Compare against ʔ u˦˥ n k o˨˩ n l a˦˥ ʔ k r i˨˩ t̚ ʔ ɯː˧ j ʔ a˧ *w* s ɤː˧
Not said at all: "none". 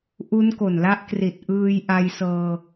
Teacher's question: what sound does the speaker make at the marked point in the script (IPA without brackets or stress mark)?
j